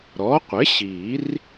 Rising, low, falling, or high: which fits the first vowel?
rising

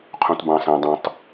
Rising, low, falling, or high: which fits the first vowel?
low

